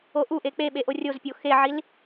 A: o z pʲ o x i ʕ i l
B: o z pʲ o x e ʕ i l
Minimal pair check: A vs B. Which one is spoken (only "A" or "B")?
B